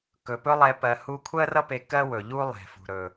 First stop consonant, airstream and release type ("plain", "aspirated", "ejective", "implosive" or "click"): plain